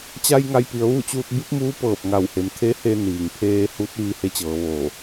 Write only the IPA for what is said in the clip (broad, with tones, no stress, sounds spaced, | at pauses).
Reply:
t͡ɕ a˧ j ŋ a˧ j p i˩˧ ə̯ ʋ u˥˨ t͡ɕ uː˧ t̚ b i˧˥ p̚ m uː˧˥ p ɤː˧˩ p̚ ŋ a˧˩ w h e˩˧ m t̪ʰ e˧˥ h e˧ n iː˩ ŋ pʰ eː˧ h u˧˥ t̚ ʋ i˧ h e˧˥ t͡ɕ ɤː˩˧ ʋ oː˧˩